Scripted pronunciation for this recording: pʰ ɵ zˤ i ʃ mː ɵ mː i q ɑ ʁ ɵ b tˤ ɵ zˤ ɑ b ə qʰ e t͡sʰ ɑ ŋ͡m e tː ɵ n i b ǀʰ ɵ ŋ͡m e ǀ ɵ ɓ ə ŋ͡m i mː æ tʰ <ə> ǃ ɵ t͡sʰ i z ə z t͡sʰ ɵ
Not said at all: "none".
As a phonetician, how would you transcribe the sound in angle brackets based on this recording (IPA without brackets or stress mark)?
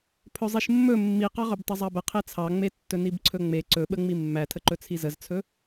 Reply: ə